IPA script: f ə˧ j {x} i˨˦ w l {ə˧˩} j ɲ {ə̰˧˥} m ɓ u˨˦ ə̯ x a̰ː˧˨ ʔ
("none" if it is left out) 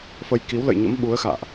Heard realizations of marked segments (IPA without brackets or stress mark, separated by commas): k, ə̰˧˨, ə̰˧˥